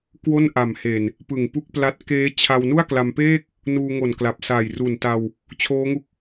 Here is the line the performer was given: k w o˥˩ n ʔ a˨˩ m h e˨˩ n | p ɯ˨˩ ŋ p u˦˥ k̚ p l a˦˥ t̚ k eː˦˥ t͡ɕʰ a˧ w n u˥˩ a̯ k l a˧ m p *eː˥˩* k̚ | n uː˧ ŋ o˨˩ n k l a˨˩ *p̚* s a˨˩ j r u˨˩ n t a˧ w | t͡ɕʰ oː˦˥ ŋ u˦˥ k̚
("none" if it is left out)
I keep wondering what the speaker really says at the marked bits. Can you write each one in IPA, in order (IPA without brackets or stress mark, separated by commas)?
eː˥˩, p̚